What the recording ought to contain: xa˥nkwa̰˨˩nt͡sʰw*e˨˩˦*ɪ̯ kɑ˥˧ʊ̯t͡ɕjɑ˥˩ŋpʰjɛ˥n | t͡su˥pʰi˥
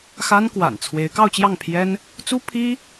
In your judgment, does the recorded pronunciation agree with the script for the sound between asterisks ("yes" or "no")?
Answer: no